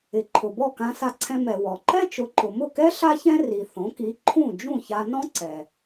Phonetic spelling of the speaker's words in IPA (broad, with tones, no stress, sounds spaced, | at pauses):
ɪ˩ ǃʰ ʊ˩ b ɔ˥˩ k ã˧ s a˧ ǀʰ ɛ̃˧ m ɛ˩ w ɔ˩ ǃ ɛ˥ t͡ʃ ʊ˩˥ ǃ ʊ˩ m ʊ˥˩ k ɛ˥ ɬ a˥ ç ɛ̃˥ r i˩ θ õ˩˥ k i˩˥ ǃʰ ũ˥˩ d͡ʒ ũ˥˩ ç a˧ n ɔ̃˥ ǀ ɛ˩